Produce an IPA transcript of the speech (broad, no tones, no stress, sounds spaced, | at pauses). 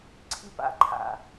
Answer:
ǀʰ i p a̰ ǃʰ a̰